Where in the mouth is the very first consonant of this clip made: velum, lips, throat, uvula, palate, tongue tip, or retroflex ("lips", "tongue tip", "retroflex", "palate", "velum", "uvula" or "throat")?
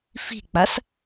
lips